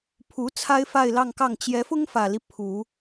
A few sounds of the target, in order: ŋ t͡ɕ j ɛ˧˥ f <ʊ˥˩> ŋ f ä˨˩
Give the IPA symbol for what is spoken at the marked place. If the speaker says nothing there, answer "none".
ʊ˥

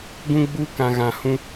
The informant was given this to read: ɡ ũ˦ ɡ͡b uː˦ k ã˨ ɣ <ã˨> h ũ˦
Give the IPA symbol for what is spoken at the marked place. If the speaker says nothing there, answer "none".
ã˨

